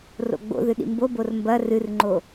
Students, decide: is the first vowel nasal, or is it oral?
oral